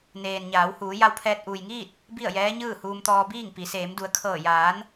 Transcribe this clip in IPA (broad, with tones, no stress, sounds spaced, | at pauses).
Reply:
n eː˩ n ɲ aː˩˧ w h uː˩˧ j a˧ w pʰ ɛː˧ t̚ ʔ uː˩ j ŋ iː˥˨ t̚ | b i˥˨ ə̯ j ɛː˧˥ ɲ ɯː˥˨ h uː˧ m t̪ ɔː˧ b iː˥˨ ŋ p i˩˧ s eː˩˧ m d u˩˧ ə̯ kʰ ɤː˧˩ j aː˩˧ n